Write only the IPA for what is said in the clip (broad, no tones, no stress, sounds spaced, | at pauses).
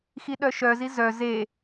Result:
x i ɗ œ ʃ œ z i z œ z e